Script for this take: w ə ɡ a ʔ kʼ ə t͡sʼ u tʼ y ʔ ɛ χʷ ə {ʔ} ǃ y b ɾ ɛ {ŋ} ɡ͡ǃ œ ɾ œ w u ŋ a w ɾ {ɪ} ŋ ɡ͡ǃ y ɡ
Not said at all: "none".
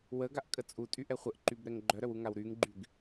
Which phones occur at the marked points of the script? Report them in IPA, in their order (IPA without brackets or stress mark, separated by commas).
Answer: ʔ, ŋ, y